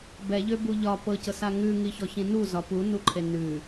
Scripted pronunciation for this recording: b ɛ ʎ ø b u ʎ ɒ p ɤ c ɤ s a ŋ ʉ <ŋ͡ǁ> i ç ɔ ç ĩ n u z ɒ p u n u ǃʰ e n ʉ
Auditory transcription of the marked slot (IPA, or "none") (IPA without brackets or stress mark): ŋ